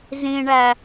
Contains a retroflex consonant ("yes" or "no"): yes